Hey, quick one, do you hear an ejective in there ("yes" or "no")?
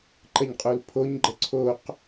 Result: yes